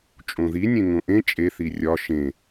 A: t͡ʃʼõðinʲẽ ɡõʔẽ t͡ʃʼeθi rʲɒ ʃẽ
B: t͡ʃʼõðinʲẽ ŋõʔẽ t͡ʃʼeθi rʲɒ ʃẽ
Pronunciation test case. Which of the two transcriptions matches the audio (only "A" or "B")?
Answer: B